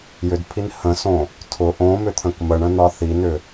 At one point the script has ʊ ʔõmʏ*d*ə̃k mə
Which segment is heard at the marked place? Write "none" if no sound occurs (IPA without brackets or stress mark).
t̪ʰ